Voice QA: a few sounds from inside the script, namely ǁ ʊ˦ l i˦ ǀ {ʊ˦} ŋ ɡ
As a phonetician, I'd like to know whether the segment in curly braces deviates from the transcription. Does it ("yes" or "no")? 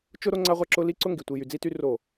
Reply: no